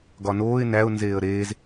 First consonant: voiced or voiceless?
voiced